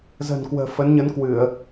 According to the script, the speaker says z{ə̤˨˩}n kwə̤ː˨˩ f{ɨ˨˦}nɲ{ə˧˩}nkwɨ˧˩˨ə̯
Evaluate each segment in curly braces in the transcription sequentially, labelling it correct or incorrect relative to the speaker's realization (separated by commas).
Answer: correct, incorrect, incorrect